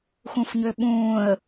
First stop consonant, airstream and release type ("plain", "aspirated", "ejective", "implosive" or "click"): implosive